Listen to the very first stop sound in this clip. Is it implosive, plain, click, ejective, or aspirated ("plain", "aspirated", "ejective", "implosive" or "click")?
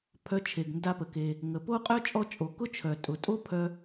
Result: aspirated